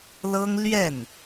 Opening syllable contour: high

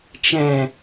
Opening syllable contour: low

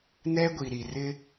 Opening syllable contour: high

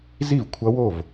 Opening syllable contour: falling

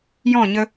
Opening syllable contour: falling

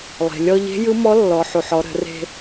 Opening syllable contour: low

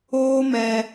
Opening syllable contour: high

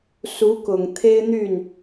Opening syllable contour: rising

